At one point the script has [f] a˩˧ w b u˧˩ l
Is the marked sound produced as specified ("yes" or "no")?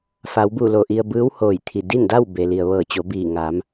yes